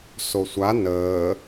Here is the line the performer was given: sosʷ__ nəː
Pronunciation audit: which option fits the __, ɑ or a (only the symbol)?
a